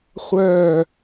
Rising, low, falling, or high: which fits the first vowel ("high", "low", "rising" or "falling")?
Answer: falling